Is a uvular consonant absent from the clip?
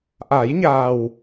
yes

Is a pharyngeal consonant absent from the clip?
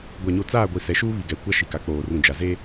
yes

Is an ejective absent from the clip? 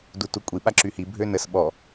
no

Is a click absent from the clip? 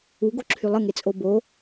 no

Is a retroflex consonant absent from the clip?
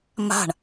no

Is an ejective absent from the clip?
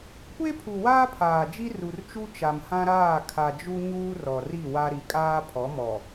no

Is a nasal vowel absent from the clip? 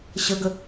yes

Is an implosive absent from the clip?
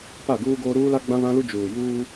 yes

